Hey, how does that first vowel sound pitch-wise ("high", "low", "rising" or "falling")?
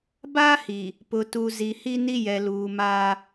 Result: high